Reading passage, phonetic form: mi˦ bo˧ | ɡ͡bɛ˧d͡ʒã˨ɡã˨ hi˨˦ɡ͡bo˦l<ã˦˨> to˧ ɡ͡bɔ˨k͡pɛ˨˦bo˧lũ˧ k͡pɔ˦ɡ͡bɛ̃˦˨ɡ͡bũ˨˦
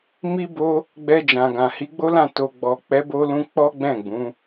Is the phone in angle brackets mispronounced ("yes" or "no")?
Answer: no